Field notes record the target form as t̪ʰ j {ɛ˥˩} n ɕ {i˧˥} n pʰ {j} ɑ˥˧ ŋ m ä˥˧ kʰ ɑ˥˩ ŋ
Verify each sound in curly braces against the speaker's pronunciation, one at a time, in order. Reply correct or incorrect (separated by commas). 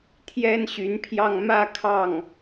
incorrect, incorrect, correct